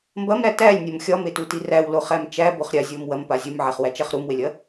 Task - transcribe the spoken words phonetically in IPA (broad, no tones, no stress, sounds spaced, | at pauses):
m b ɐ m ɾ æ t æ lʲ nʲ ɐ m xʲ ɒ m e t u t i r æ w l o χ æ m t͡ʃ æ b o χ ɾʲ a zʲ o m w ɐ m p a zʲ u m ʕ æ χ w æ t͡ʃ æ χ ɾ u m w e lʲ ɐ